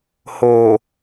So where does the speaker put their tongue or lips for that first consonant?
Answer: throat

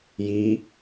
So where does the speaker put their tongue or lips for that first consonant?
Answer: palate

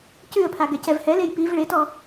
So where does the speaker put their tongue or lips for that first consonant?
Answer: palate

